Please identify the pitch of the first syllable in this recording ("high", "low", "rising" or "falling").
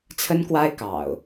high